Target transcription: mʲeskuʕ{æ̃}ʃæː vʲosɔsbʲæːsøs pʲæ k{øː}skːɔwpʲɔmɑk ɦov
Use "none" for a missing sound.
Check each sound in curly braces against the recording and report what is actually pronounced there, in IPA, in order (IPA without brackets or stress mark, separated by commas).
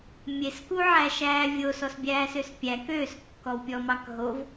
æ, øː